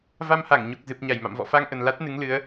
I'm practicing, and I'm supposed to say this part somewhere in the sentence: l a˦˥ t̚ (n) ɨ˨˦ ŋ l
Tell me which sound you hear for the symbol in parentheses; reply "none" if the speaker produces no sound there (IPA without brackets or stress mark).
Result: n